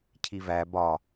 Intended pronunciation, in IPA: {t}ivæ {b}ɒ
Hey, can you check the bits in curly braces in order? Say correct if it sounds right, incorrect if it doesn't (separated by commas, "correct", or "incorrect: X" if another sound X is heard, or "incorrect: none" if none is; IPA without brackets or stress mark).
incorrect: cʰ, correct